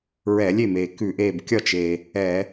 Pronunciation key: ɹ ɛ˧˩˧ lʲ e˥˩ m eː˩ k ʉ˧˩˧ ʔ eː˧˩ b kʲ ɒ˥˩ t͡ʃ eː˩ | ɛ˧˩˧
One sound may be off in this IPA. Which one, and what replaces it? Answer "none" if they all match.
none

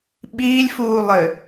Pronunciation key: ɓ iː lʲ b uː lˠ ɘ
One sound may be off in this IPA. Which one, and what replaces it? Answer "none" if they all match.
b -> f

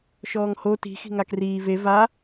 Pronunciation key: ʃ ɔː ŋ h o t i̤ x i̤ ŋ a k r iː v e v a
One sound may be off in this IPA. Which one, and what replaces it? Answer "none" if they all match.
none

